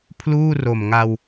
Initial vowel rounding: rounded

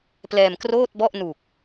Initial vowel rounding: unrounded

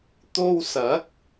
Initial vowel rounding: rounded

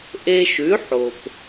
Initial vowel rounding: unrounded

